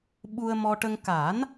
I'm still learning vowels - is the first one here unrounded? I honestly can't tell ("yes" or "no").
no